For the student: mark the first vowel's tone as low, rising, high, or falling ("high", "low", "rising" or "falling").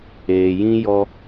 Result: low